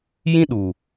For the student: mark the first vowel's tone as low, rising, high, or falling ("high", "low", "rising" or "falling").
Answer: high